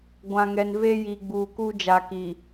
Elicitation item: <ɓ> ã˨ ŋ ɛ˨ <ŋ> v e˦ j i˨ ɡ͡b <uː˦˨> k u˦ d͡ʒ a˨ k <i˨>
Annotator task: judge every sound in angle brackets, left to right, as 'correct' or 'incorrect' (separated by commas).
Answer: incorrect, incorrect, incorrect, correct